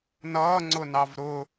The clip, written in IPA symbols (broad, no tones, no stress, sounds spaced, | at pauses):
n ʌː ŋ͡ǀ ʊ n ɑ v ɾ ʊ